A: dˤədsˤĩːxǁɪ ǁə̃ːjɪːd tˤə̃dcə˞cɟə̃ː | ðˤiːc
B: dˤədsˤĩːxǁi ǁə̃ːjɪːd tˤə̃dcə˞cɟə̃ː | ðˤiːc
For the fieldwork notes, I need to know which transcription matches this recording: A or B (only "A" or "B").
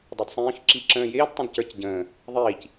B